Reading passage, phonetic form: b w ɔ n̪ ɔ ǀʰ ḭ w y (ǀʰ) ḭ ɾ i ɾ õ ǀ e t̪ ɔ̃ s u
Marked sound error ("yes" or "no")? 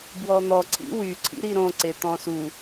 no